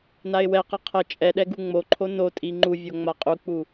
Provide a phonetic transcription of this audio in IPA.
n a ɪ̯ w ɛ q ɤ qʰ ɤ t͡ʃʼ ɛ ɗ ɛ ɡ u ŋ͡m o ǃʰ o n o tʼ i ŋ͡ǃ u vʲ o ŋ͡m a qʼ u k͡p u

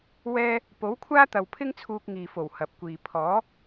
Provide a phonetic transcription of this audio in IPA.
w ɛː˥ | p o˨˥ w kʷʰ aː˥ t̪ ɐ˨ w pʰ ɪ˥ ŋ t͡sʰ uː˧ k̚ ŋ iː˨ f o˨˩ w h ɐ˨ p̚ kʷ iː˨ pʰ ɔː˨˥

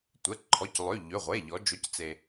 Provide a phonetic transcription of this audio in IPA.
tʷ ɛ˩˧˩ ǃʰ ɔ˩˧˩ c lˠ ø˩˧˩ ʎ ø˩˧˩ ʁʷ e˩˧˩ ʎ ɔ˩˧ d͡ʒ o˩˧˩ c t͡s e˩

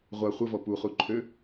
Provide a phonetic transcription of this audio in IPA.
ʁʷ a χʷ ə v ɔ p u χ u ǃʰ ø

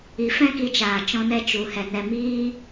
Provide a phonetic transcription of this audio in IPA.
i˨ f ɛ̃˦ k i˧ t͡ʃ aː˨ t͡ʃ ɔ̃˧ n ɛ˧ t͡ʃ u˨ h ɛ˨ n ɛ˨ m iː˧

